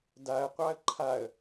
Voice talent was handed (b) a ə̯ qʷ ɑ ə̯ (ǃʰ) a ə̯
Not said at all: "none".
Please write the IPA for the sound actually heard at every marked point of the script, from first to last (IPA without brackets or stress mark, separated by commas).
d, ǃʰ